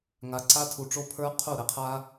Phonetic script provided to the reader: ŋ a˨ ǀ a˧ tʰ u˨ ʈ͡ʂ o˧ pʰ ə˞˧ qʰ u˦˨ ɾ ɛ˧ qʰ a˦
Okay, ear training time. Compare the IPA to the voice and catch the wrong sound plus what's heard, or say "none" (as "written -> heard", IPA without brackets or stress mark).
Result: none